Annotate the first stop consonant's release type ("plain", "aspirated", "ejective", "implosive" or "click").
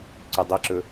click